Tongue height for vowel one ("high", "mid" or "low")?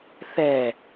mid